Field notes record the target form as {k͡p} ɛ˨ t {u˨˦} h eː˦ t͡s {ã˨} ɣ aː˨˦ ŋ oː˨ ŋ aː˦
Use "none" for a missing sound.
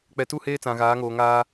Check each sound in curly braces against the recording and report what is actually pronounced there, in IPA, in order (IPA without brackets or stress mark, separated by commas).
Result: k͡p, u˦˨, ã˨